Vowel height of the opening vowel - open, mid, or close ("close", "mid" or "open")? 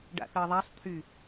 open